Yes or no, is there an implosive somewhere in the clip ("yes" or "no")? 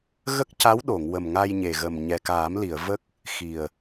yes